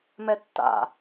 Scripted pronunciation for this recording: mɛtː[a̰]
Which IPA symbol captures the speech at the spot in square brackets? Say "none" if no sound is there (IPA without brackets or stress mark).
a̰